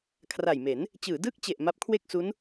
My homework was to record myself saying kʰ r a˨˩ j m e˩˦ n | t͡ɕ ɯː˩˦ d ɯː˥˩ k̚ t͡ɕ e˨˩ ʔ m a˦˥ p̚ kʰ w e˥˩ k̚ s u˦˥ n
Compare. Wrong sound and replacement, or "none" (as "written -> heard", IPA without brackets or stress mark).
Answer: none